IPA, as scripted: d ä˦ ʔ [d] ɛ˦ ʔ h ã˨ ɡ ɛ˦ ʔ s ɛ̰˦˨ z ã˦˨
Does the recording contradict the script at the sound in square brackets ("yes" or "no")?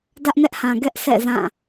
yes